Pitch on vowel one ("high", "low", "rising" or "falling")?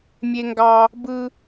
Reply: high